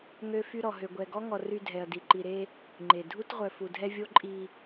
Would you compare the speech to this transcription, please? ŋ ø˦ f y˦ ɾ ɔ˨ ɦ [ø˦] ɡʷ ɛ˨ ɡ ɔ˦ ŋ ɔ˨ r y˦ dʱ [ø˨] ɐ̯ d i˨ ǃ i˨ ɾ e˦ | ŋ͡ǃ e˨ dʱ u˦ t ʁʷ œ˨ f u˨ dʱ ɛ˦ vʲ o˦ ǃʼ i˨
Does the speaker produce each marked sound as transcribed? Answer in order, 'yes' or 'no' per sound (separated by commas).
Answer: no, no